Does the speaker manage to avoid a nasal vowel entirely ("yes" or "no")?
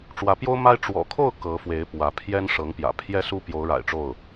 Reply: yes